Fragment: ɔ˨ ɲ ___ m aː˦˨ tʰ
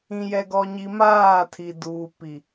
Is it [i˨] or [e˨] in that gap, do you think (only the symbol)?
i˨